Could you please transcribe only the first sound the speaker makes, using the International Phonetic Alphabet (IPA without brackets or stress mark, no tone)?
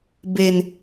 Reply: b